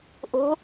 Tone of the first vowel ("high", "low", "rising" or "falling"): rising